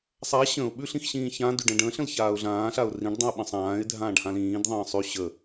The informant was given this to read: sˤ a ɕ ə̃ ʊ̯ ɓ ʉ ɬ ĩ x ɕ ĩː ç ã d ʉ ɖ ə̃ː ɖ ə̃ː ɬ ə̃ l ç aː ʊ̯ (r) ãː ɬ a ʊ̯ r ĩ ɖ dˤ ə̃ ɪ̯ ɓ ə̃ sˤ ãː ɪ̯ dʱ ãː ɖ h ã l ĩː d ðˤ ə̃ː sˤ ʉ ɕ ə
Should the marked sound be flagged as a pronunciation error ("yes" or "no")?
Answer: yes